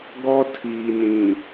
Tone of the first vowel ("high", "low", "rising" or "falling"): high